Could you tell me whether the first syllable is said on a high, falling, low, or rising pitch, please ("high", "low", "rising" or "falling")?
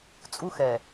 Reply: high